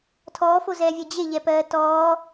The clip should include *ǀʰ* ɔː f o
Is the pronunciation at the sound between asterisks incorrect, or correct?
incorrect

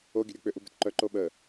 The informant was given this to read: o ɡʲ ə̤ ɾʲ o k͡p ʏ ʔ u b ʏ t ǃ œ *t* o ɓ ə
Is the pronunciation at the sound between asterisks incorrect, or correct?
incorrect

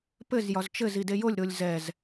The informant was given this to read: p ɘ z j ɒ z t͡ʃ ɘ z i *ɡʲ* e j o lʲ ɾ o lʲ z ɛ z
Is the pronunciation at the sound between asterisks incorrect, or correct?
incorrect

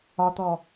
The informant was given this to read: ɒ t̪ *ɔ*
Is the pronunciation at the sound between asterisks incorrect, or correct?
correct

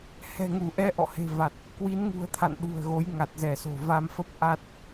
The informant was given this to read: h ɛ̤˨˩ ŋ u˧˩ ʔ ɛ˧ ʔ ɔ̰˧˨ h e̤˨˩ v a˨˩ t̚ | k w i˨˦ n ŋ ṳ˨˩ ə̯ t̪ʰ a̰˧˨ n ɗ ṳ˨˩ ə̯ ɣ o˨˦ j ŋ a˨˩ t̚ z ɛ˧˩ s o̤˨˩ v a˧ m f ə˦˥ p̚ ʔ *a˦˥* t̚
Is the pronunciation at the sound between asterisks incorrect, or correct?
correct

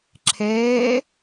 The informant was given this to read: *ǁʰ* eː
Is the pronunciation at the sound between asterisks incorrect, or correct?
correct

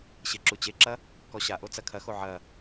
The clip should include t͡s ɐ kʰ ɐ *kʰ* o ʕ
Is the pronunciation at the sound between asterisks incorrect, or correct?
incorrect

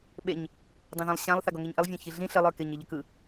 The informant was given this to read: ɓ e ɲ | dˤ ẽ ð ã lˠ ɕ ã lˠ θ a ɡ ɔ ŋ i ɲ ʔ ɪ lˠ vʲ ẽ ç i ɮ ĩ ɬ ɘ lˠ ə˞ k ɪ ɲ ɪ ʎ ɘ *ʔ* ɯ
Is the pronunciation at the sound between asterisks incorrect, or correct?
incorrect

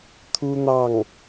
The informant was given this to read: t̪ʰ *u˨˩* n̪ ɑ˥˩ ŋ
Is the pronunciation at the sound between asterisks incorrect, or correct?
incorrect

